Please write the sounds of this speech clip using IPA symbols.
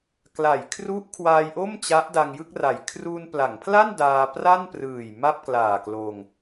kla˩˦jkʰru˦˥ʔ kʰwaː˧jʔo˥˩m t͡ɕa˦˥ʔda˧ŋjɯ˥˩k̚ra˨˩j kʰru˧n pla˩˦ŋpʰla˥˩n daː˧ pra˥˩nprɯː˨˩j ma˥˩p̚klaː˨˩kloː˧ŋ

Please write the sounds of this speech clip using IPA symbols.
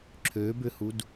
ǁʰøbʏhud

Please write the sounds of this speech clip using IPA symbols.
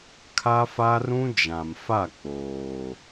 kʰa˦fa˦ rũ˦d͡ʒã˨mfa˦˨ k͡poː˨

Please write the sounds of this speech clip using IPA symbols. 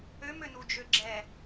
ømønud͡ʒø ɡ͡ǁɛ

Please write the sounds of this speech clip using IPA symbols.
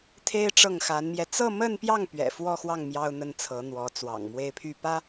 t̪ʰe˥ɪ̯ʈ͡ʂɤ˥˩ŋxa˧˥nmjɛ˧ t͡sɤ˥˧mə˥˧npjɑ˥˩ŋ pɥɛ̰˨˩fwɔ˥˧xwɑ˥˩ŋ mjɑ˥ʊ̯n̪ə˥nt͡sʰɤ˧˥n̪wɔ˧˥ t͡swɑ̰˨˩ŋmwe˥˧ɪ̯ pʰy˥˩pä˥

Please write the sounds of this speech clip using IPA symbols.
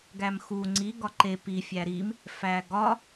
ɡæmxu ŋ͡ǀi ɡɒǃe pi fʲæɾim | fæɡɒ

